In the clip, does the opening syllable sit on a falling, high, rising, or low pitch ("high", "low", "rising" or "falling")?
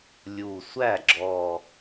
low